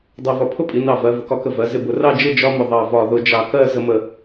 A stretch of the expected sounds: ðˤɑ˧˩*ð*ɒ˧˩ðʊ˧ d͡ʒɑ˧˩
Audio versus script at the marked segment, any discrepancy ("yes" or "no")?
yes